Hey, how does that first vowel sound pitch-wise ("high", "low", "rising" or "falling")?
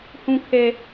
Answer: low